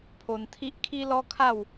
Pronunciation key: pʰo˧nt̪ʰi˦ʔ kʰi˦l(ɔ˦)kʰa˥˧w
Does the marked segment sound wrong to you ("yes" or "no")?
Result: no